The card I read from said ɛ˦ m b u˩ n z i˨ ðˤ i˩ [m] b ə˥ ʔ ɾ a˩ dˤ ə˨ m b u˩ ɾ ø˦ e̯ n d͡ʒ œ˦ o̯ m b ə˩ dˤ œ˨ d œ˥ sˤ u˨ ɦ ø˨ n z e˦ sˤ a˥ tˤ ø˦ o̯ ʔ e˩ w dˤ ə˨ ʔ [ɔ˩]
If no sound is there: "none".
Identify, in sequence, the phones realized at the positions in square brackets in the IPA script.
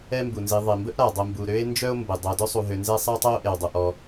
m, ɔ˨

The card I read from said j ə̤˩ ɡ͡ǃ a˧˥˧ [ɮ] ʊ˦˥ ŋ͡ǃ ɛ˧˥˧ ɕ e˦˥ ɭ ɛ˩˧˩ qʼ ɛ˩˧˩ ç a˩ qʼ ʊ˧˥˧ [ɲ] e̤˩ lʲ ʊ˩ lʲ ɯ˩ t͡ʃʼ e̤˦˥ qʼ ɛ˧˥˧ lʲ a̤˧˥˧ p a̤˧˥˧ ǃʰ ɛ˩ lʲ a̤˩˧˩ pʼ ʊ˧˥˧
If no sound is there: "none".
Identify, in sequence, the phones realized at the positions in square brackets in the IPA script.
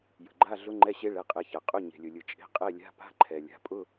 ɮ, ɲ

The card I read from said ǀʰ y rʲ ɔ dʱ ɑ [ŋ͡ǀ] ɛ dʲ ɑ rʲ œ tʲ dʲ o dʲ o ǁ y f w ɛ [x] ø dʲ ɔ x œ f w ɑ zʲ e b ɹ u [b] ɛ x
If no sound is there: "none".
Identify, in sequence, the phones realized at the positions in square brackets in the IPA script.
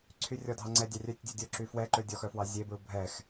ŋ͡ǀ, ǃ, bʱ

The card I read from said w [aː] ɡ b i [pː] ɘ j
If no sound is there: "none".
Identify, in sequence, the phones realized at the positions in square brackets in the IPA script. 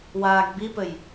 aː, p

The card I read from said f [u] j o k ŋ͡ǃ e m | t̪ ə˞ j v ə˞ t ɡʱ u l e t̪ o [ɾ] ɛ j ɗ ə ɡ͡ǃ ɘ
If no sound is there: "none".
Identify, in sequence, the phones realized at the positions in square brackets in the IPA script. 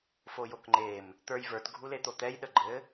o, t̪

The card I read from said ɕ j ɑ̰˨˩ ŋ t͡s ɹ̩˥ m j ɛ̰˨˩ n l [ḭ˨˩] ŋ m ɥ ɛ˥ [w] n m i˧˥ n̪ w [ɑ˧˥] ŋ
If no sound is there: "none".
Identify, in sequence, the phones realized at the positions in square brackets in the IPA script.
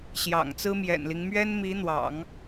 i˦, none, ɑ̰˨˩˦

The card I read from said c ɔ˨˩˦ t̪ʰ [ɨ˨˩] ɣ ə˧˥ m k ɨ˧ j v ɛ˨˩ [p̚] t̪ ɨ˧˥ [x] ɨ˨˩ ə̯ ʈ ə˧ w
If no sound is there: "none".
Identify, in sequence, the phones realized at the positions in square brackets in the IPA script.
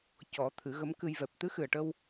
ɨ˨˩˦, p̚, x

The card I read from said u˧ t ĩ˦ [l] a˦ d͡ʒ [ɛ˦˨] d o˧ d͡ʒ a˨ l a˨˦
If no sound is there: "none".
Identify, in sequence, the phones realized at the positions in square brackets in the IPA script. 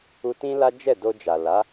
l, ɛ˦˨

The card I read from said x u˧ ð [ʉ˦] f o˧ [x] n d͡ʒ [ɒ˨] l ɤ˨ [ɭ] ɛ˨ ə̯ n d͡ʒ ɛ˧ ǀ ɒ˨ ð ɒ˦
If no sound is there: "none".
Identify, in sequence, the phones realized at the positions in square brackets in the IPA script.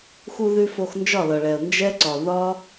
ʉ˧, x, ɒ˦˨, ɭ

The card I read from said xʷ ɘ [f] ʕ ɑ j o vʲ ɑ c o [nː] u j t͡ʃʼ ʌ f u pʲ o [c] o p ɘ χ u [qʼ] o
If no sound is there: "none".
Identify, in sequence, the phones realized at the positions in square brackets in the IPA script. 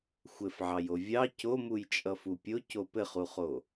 f, m, c, χ

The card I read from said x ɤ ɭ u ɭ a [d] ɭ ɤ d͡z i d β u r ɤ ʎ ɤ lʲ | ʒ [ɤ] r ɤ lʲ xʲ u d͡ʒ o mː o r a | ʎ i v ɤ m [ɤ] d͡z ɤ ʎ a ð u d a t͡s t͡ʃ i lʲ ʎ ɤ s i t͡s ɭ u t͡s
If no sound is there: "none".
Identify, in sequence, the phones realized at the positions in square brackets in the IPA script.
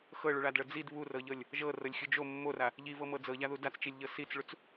d, ɤ, ɤ

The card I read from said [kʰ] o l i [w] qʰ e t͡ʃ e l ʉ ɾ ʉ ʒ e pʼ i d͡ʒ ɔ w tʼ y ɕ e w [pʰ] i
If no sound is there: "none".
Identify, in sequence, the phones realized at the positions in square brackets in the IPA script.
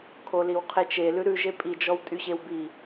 kʰ, w, b

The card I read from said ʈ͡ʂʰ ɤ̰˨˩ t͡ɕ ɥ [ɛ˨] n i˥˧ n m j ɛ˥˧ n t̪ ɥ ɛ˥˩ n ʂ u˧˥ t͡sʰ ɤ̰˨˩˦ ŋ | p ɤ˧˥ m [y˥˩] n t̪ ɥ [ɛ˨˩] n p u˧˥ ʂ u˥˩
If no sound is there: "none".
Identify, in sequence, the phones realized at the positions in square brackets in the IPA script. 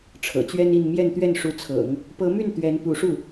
ɛ˥, y˥˩, ɛ˧˥

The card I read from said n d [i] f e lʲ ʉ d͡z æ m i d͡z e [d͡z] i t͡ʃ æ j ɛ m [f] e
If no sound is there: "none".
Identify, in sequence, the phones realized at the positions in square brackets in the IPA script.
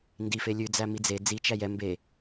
i, d͡z, b

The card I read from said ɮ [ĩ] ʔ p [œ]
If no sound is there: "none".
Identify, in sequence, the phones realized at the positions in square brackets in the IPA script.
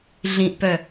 ĩ, œ

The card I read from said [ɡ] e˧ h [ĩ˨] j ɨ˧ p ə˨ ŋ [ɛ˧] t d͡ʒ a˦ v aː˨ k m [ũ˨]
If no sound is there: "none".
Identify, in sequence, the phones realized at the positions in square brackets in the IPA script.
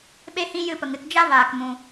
ɓ, ĩ˧, ɨ˧, ũ˨

